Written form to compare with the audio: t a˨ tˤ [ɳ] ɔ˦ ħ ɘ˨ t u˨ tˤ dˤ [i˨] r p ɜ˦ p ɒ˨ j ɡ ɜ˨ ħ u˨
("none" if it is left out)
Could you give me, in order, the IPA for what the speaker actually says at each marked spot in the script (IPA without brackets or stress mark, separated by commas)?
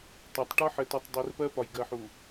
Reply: ʈ, i˨